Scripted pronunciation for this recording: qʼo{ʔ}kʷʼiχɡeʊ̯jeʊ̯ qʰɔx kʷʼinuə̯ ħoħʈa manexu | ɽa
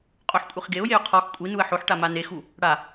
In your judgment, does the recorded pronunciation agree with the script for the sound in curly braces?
no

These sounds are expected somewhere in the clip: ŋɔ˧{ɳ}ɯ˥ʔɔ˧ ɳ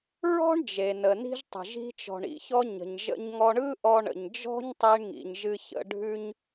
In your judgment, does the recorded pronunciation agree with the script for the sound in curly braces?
yes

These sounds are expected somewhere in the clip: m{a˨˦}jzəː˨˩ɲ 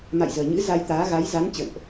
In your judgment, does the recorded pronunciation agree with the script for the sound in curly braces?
no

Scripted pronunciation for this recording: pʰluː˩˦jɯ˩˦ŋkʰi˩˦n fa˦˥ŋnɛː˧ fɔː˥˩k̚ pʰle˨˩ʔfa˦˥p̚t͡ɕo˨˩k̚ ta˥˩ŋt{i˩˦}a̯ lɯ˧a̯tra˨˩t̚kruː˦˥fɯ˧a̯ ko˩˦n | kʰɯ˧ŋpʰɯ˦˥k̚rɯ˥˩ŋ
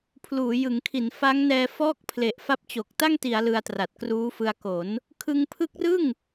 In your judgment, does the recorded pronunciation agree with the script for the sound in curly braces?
yes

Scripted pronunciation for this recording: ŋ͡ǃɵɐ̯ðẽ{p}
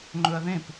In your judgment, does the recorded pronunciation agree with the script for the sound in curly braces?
yes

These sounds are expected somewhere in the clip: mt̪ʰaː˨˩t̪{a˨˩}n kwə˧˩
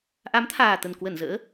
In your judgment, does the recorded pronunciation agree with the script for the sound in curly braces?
no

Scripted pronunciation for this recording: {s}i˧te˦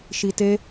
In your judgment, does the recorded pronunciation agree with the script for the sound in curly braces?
no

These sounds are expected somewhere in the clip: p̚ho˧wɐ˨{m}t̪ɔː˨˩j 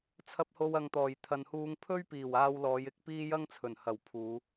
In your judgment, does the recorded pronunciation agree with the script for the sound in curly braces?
no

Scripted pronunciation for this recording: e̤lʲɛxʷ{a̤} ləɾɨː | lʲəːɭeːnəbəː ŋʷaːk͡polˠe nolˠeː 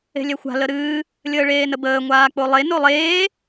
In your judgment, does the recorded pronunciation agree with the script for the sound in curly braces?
yes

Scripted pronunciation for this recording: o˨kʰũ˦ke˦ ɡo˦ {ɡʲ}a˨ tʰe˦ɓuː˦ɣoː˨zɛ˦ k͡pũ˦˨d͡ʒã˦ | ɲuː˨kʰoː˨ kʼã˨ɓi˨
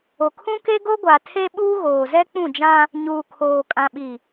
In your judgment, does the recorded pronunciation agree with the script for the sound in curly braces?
no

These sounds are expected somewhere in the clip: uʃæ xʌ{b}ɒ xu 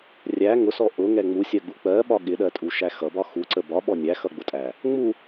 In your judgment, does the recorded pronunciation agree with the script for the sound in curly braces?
yes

